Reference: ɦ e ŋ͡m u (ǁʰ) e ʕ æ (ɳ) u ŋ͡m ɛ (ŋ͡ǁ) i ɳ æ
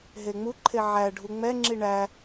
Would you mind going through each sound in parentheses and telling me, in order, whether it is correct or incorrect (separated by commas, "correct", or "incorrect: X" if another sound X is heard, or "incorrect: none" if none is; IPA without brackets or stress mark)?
incorrect: ǃʰ, incorrect: ɖʱ, correct